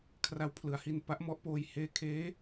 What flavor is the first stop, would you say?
aspirated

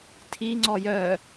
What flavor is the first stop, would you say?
aspirated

